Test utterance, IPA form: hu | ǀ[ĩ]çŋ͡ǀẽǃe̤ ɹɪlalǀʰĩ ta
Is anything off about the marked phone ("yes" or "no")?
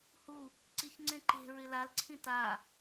yes